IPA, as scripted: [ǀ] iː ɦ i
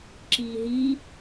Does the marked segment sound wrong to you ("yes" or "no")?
yes